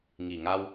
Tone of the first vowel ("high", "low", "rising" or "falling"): low